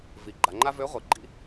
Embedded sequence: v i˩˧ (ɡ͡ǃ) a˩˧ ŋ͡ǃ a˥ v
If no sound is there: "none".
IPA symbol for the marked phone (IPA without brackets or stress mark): ɡ͡ǃ